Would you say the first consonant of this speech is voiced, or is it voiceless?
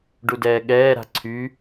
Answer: voiced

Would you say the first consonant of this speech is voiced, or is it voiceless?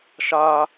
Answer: voiceless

